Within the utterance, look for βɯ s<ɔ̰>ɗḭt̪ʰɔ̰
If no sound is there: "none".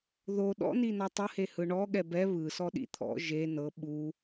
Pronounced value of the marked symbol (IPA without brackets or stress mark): ɔ